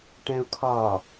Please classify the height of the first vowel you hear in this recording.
mid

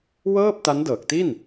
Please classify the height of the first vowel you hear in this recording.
mid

